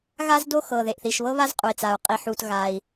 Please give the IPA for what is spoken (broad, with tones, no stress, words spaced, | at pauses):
ɣa˥zdo˥ xɤ˩ ðe˩ʔθi˩ʃβɤ˥βa˥z qʼu˩i̯t͡sa˩u̯ qʼi˩ħu˩t ɣa˩i̯